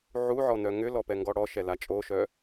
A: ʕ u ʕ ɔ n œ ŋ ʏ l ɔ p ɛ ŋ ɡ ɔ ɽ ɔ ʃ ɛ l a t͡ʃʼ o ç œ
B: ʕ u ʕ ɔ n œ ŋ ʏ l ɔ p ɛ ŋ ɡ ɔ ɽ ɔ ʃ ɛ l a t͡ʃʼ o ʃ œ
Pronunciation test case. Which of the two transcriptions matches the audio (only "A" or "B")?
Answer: B